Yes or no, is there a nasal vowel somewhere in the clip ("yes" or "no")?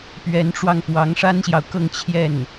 no